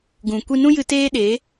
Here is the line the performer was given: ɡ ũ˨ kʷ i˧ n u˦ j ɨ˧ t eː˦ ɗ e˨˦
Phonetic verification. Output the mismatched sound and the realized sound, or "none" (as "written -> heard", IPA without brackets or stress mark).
u˦ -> ũ˦